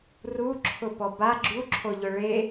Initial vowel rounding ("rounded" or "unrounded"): rounded